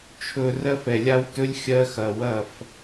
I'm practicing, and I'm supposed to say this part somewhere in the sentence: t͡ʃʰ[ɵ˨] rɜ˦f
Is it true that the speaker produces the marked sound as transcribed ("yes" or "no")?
yes